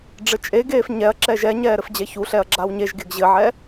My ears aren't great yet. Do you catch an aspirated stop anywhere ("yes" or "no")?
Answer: no